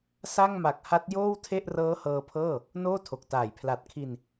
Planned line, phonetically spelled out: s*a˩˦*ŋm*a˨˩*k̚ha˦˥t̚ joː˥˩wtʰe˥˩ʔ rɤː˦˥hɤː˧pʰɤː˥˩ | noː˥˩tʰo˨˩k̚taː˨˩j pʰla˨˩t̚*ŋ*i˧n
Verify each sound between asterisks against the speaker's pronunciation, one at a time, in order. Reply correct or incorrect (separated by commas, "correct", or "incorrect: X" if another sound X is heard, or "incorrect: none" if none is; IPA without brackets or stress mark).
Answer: incorrect: a˥˩, correct, incorrect: kʰ